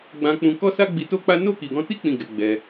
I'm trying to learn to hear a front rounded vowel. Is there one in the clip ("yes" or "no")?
no